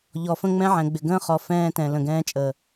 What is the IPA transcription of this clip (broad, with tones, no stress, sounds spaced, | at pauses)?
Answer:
ʎ ɔ˨ f ə̃˦ ŋ͡m ɛ̃˦ ʕ ɛ̃˨ ɡ͡b ɪ˨ ɡ ə̃ː˦ χ ɔ˨ f ɛ̃ː˦ t ɛ̃˨ l ə̃˨ ɡ ɛ̃ː˦ t͡ʃʼ əː˨